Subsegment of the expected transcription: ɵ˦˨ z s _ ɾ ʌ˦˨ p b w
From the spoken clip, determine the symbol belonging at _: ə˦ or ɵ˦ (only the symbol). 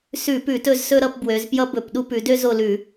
ɵ˦